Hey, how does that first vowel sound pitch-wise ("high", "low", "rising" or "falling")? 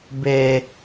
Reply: low